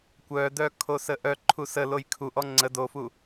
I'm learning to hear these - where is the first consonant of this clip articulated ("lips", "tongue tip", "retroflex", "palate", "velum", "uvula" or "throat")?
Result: velum